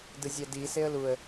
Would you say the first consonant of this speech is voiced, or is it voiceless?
voiced